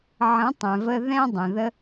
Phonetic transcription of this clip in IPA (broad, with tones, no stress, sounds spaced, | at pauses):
ʕ ə̃˨˦ tˤ ɛ̃˨ v ə˧ ð ɛ̃˧ dˤ ə̃˨ ð ə˦